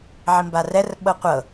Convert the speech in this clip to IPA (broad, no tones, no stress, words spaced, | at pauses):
ʕimbarɛr ɓɤqʷɤ